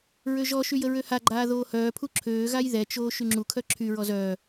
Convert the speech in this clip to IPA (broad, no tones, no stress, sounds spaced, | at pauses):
ɹ ø ʒ ɔ ʃ y j ə ɹ ø h a ɡ͡ǃ aː ð oː h œː pʰ u ǁʰ øː ɣ a j ð ɛ t͡ʃ oː ʃ y ŋ͡ǁ u kʰ œ ǁʰ y ɹ ɔ z œː